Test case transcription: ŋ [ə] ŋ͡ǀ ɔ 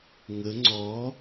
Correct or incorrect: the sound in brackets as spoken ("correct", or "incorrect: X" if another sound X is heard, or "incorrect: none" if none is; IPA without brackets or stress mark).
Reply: correct